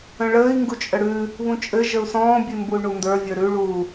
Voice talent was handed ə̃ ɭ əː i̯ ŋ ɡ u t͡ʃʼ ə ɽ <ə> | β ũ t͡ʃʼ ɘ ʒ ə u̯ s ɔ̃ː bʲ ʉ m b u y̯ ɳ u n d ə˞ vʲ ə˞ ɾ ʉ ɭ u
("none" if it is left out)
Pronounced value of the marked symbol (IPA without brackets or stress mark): ʉ